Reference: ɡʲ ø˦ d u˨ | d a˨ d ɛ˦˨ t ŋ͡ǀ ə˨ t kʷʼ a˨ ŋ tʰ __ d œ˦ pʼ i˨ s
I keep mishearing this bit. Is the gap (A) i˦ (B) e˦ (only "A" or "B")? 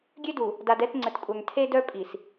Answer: B